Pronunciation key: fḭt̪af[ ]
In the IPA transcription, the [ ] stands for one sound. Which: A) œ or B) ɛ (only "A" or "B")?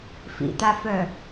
A